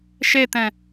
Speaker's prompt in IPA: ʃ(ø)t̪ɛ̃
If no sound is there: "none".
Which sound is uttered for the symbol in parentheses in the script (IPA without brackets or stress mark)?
e